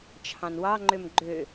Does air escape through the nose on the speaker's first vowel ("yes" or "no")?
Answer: yes